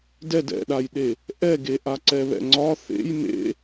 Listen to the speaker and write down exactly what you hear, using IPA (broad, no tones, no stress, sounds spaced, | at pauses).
d ɛ d ɛ̰ ɗ a j ɗ e | ʔ ɛ ɡ e ʔ a ǀ ɛ β ɛ̰ ŋ͡ǀ ɒ θ ḛ j m ḛ